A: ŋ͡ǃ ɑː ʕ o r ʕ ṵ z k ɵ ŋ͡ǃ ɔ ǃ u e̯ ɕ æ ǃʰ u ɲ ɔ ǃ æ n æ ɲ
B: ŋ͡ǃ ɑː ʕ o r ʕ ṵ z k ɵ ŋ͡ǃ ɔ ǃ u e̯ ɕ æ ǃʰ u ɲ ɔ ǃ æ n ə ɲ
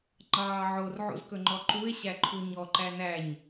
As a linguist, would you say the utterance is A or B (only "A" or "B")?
A